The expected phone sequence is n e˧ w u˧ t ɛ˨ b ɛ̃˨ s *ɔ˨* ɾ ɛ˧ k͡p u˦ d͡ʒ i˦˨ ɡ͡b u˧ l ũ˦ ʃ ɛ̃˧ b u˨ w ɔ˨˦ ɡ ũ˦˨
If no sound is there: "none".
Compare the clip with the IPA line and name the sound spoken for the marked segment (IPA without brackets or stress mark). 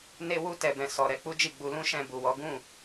ɔ˨